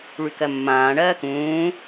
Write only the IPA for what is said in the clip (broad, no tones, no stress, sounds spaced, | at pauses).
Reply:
ɭ y k ɜ mː ãː ɳ ɜː k ũː